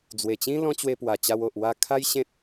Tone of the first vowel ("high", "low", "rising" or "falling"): low